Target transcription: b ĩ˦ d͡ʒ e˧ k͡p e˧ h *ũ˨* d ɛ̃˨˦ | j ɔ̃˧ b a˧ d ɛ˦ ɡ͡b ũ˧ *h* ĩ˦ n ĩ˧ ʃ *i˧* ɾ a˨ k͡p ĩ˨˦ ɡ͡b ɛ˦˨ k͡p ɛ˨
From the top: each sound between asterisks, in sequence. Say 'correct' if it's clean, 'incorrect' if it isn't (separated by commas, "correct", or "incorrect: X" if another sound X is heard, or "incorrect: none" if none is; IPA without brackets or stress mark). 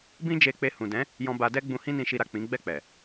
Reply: correct, correct, correct